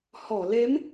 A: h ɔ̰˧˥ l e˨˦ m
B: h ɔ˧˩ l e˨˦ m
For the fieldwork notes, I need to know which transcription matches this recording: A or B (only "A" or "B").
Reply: B